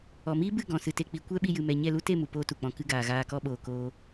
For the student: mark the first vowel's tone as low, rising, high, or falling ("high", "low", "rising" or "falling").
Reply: low